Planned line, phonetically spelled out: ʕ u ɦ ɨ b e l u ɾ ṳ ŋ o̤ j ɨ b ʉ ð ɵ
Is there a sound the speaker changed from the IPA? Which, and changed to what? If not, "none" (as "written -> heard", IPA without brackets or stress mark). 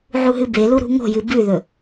none